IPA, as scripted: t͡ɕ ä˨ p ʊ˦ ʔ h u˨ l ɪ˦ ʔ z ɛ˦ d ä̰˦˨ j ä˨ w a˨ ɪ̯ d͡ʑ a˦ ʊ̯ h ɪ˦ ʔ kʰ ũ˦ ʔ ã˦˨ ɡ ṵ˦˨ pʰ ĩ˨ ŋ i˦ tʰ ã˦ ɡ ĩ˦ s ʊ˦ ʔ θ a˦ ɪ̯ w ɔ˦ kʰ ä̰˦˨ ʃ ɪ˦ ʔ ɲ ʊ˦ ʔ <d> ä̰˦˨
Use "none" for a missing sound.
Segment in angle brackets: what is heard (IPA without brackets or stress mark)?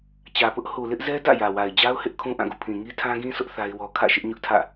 tʰ